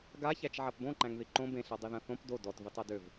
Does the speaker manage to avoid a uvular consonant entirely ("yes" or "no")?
yes